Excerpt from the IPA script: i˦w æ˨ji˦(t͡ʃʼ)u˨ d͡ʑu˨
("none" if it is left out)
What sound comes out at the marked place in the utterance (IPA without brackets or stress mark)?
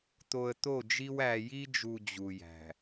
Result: d͡ʒ